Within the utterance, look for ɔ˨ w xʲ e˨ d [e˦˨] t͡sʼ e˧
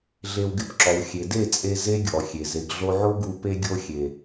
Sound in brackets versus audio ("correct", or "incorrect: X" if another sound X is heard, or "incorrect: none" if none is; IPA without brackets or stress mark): correct